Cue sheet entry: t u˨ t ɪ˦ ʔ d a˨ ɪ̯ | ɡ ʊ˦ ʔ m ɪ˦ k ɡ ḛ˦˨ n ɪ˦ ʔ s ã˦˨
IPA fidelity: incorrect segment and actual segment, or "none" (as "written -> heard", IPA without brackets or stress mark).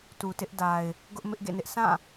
k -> ʔ